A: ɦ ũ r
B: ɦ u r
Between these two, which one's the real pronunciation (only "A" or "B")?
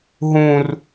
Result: A